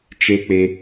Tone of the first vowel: high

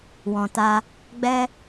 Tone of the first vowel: low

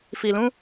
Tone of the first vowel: low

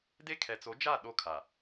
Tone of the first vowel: high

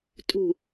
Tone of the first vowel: falling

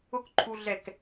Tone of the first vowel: falling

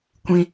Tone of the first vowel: high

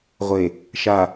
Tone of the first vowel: low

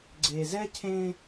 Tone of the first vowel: low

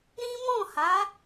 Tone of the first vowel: high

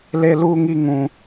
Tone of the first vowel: high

